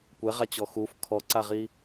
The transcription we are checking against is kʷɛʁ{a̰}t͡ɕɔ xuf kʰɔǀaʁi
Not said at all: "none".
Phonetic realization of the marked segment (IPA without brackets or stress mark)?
a